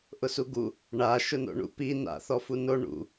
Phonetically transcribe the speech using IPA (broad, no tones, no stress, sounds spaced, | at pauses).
ʔ ʊ s u ɡ u | ɳ a ʃ ʊ n o̰ ɳ ṵ p i n a̰ θ ɔ f u n o ɳ ṵ